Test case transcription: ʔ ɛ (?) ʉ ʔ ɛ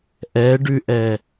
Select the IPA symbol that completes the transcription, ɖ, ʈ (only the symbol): ɖ